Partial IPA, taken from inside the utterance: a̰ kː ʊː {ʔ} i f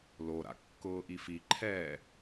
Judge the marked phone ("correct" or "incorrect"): correct